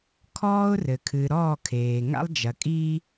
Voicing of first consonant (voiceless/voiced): voiceless